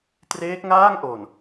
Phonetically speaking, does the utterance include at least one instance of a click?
no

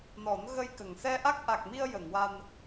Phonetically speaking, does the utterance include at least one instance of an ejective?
no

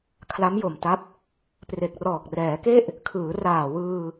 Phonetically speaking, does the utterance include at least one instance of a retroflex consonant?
no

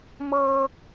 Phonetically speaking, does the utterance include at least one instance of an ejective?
no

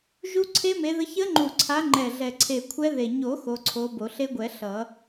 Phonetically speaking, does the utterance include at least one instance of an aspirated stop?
yes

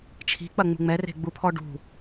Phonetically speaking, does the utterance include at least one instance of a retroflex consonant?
yes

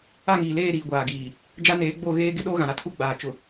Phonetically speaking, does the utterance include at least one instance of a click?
no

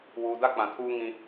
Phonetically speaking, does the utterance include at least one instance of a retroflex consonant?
no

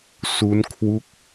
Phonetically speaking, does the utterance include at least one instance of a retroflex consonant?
no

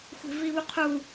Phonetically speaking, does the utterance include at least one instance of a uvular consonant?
yes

